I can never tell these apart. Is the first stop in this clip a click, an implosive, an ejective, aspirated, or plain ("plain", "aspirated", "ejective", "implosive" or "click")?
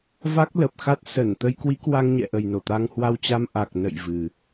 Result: plain